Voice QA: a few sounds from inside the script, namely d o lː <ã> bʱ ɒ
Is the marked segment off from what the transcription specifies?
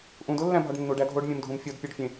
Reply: yes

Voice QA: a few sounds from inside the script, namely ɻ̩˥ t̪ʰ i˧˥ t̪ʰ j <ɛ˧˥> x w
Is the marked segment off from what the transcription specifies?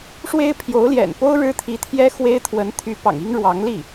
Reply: yes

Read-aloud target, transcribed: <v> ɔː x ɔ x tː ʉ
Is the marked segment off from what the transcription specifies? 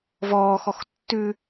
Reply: no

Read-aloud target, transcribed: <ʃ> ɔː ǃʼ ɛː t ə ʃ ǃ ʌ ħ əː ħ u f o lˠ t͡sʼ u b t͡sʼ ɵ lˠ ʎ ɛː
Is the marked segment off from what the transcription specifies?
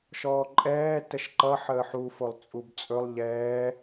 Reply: no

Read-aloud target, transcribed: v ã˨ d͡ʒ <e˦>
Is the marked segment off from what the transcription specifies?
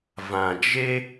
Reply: no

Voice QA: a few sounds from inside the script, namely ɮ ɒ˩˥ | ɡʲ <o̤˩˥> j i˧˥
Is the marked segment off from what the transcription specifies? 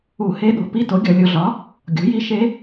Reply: no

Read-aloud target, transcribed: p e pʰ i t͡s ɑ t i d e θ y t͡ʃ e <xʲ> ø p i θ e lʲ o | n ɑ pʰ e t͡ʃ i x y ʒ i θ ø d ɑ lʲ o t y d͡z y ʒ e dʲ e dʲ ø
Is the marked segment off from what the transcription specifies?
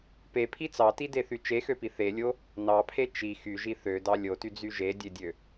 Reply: yes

